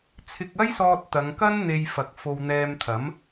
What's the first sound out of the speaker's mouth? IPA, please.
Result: t͡sʰ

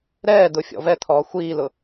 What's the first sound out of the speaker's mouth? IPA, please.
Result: ɾ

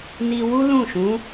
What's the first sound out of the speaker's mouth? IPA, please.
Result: n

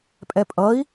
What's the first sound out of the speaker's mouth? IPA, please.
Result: pʼ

